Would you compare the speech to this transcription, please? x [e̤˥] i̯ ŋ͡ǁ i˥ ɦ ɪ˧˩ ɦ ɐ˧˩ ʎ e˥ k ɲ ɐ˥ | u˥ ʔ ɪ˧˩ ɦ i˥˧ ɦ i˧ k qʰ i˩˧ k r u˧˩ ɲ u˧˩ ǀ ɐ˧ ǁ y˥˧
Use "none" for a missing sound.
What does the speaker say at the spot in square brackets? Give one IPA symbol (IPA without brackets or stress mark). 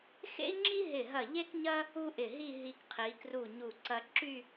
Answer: ḛ˥